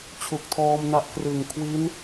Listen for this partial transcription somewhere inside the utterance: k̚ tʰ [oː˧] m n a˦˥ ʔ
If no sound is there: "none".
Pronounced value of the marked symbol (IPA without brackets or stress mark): ɔː˧